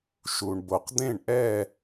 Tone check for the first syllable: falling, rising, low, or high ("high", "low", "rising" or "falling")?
low